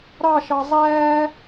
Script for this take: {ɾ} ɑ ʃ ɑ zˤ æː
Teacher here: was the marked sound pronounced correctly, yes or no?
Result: yes